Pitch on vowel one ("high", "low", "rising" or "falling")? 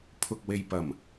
low